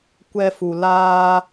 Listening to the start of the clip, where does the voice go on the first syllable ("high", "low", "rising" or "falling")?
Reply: high